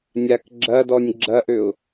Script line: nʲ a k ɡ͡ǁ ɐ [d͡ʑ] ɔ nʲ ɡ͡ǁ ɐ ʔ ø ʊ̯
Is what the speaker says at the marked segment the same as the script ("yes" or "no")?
no